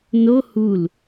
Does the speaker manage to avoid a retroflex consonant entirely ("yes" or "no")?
yes